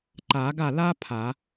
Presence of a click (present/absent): present